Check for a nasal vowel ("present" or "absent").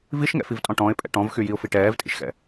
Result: present